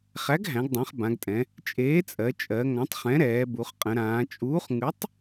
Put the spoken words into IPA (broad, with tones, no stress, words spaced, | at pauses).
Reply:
χæ˨˥ɡɦæ̃˩˧ɡdˤæ̃˩˧χ bã˩˧ɡtʼɛ̃˩˧ | t͡ʃʼeː˨˥t͡sʼɜ˩˧ t͡ʃʼɜ˩˧ ŋã˨˥tˤχɛ̃˨˥ɾɛː˩˧ bu˩˧χqʼə̃˩˧ɾãː˩˧ t͡ʃʼuː˨˥χ ŋʉ˨˥tˤ